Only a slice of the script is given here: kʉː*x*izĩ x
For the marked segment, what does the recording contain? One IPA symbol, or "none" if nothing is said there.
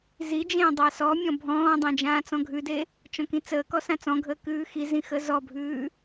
x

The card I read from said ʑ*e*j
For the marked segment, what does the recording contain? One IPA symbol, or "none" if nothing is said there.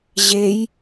e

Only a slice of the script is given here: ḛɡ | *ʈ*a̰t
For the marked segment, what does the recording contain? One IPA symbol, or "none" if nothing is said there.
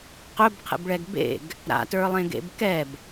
ɾ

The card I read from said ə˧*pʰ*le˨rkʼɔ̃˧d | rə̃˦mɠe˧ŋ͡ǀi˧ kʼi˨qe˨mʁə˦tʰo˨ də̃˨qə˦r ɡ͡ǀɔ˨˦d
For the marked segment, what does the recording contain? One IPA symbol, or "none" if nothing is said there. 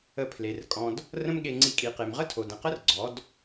pʰ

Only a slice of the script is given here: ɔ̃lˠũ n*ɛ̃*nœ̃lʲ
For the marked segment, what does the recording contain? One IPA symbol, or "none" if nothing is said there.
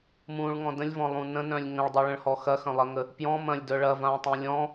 ə̃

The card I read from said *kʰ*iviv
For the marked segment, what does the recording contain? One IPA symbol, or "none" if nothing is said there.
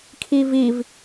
kʰ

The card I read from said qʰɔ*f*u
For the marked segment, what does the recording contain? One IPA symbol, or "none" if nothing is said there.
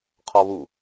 β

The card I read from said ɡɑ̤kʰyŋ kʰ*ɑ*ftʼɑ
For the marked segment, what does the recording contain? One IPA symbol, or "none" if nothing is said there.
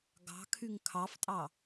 ɑ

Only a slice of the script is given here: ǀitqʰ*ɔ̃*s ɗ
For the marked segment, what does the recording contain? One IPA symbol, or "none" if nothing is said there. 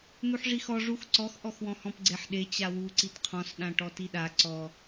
ɔ̃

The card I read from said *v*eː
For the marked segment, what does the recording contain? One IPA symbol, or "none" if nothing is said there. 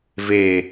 v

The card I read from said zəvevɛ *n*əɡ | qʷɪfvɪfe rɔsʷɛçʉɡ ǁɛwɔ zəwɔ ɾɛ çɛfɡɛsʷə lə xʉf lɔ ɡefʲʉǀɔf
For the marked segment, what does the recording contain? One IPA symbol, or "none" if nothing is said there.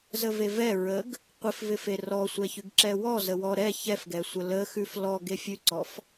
ɹ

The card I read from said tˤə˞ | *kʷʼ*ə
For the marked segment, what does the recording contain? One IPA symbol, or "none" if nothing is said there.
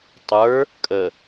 kʼ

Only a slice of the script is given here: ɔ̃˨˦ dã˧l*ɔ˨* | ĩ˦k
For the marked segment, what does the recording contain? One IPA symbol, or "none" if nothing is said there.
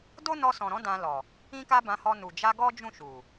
ɔ˨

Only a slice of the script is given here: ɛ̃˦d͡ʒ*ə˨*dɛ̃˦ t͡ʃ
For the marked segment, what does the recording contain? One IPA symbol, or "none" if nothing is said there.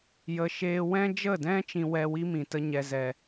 ə˦˨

